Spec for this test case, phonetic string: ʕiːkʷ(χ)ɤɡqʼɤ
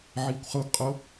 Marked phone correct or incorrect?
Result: correct